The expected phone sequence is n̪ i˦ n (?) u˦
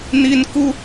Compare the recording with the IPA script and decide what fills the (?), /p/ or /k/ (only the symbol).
k